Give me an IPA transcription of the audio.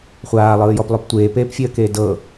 χʷ aː lˠ ɯː j ɔ p lˠ o p tʷ eː p eː p fʲ e ə̯ k eː d ɤ

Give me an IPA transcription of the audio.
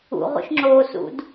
ṵ ʁ ṵ ʃ ŋ͡ǁ oː s ṵ d

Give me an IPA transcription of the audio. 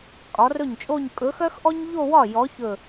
kʼ ɒ˨˥ r ɵ˥˩ ɲ t͡ʃʼ o˥˧ ɲ kʼ ɵ˨˥ x œ˥ x ʔ ɔ˥ ɲ ʎ o˥˧ w ɒ˥˩ j ɔ˨˥ ç ɵ˧˩

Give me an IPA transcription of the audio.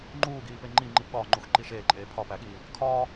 ŋ͡ǃ uː ɡ iː p e ŋ͡ǃ i ŋ͡ǃ i p ɠ ɒː ŋ͡ǃ u x ǃ i ʃ eː ǃʼ eː pʰ ɒ p æ ɠ iː | kʰ ɒː

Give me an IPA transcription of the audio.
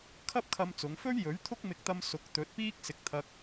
kʰ ɐ˥ p̚ kʰ ɐ˧ m t͡s ʊ˨˧ ŋ f ɵ˥ ɥ j ɵ˨˥ ɥ t̪ʰ ʊ˥ k̚ m ɪ˧ k̚ t̪ ɐ˧ m s ʊ˨˥ k̚ t̪ ɵ˨˥ t̚ p iː˥ k̚ s ɪ˧ k̚ t̪ʰ ɐ˧ k̚

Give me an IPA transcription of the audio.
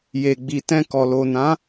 j e˨ ɡ͡b i˨ t ɛ̃˧ k ɔ˨ l o˨ n ã˨˦

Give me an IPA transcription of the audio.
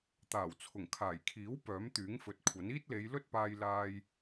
t̪ aː˨˩ w t͡sʰ ʊ˨˩ ŋ kʰ aː˨˩ j kʰ iː˨˥ w p œː˨˥ m t̪ yː˨˥ ŋ f ɵ˨ t̚ kʷʰ ɐ˨˥ n iː˥ t̚ l e˨˧ j l ɵ˥ t̚ p aː˧ j l aː˧ j

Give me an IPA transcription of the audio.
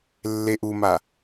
lː e ʔ u m a

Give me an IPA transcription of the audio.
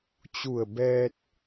t͡ɕ u˧˩ ə̯ b ɛː˧ t̚

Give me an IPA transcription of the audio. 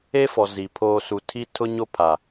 e˦ f ɔ˨ z i˨ pʰ oː˦ s u˦ tʰ i˦ tʰ ʊ˦ ɲ o˦ pʰ a˨

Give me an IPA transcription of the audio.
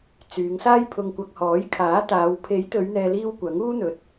t͡s yː˨˧ ŋ s aː˥ j pʰ ʊ˧ ŋ kʷ ɐ˧ k̚ h ɔː˨˥ j kʰ aː˨˥ t̪ aː˨˧ w pʰ e˨˥ j t̪ ɵ˨˧ ɥ n̪ ɛː˨ l iː˧ w kʷ ɐ˨˥ ŋ uː˥ n̪ ɵ˨ t̚

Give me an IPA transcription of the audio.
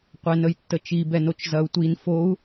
qʷ ɛ n ə j tː ə t͡ʃ i b ɛ n o t͡ʃ z ɐ u̯ tʷ i n f o u̯

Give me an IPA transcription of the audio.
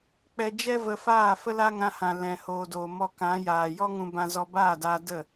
k͡p ɛ˧ d͡ʒ ɛ˦ v ə˧ f aː˦˨ f ə˦ l a˦ ŋ ã˧ h ã˨ l ɛ̃˨ h oː˨ d oː˨ m ɔ˧ k ã˨˦ j aː˨ j ɔ˦ ŋ ũ˧ b ã˧ z ɔ˧ b aː˦˨ d aː˧ d ə˦˨

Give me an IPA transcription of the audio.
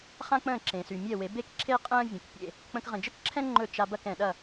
χ ã˥ k͡p ə̃ː˥˩ ǁ ẽ˩ s y˩ mʲ ɛ˥˩ w e˩˥ b e˥ k ǁʰ e˥ qʼ ə̃ː˥ vʲ ə̃˩ k pʲ ḛ˥˩ | k͡p ə̃˧ k ʁ ə̃˩ d͡ʒ ə˥ k ǁʰ ɛ̃˥ ŋ͡ǃ ɵ˥˩ t͡ʃ a˧ b ɐ˥˩ k ɛ̃˩ ɗ ɐ˥˩

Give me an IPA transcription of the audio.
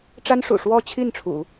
ʈ͡ʂ a˥ n ʂ ṵ˨˩ ʂ w ɔ˥˧ t͡ɕʰ i˥˩ n ʈ͡ʂʰ ṵ˨˩˦

